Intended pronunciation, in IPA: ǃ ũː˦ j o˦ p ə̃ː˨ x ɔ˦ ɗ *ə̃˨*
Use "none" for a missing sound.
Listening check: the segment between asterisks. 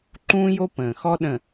ə̃˨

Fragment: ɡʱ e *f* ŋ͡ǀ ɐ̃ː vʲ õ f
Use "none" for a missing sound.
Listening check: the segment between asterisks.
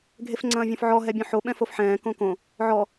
f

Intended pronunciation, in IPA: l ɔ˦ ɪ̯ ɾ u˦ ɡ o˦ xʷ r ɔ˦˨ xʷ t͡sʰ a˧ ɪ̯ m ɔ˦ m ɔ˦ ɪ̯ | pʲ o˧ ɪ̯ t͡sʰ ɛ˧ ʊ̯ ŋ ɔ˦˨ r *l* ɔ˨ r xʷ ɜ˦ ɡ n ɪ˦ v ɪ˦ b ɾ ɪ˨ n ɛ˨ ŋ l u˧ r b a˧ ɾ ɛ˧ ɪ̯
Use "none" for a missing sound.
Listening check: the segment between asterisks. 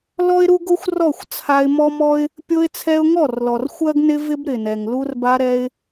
l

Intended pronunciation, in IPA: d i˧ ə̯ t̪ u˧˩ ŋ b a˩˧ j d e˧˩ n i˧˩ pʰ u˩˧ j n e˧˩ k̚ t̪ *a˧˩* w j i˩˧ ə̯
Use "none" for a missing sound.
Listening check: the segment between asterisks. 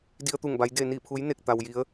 a˩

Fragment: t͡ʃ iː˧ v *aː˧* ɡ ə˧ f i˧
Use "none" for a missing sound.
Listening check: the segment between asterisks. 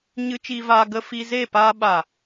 aː˧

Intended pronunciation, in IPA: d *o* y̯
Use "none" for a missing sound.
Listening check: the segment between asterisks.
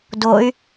o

